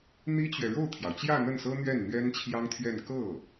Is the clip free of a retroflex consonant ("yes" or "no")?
no